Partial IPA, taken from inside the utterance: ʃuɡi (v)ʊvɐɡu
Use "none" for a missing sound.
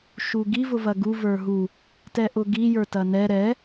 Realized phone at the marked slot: v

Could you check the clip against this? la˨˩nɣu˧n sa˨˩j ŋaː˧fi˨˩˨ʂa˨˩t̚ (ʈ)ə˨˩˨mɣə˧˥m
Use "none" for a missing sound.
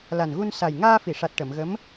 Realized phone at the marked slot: ʈ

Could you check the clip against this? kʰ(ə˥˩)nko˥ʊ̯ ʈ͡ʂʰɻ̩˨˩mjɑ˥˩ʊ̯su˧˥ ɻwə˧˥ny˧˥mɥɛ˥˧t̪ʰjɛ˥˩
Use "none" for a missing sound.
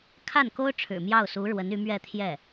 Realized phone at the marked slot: a˥˩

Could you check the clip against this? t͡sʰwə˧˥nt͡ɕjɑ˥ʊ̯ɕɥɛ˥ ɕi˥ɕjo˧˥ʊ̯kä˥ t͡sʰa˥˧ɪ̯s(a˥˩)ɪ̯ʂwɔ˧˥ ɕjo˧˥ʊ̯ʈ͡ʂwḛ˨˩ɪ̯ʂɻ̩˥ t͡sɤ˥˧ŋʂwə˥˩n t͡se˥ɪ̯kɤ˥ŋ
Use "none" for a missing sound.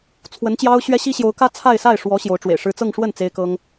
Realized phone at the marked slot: a˥˩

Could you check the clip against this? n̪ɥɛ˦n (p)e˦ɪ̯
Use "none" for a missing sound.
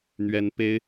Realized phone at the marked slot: p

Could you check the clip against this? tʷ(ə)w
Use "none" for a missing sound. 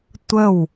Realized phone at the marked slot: ə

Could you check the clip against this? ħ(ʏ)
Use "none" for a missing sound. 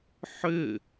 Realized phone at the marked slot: ʏ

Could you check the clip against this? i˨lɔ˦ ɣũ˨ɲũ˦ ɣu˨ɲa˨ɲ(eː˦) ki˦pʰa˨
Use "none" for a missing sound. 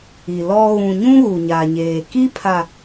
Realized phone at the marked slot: eː˨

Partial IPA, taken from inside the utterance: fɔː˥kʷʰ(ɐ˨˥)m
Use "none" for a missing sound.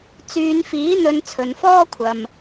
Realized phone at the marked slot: ɐ˨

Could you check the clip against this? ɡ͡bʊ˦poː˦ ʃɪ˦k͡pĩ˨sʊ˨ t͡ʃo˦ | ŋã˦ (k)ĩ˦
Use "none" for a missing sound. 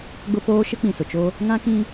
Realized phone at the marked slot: k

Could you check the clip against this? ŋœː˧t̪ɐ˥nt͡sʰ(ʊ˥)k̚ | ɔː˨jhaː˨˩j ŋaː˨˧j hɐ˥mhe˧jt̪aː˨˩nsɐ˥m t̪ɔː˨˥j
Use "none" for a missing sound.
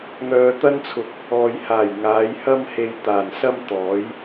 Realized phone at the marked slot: ʊ˧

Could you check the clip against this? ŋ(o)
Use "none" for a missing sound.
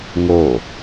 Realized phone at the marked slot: o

